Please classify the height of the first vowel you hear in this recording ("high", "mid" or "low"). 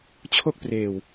mid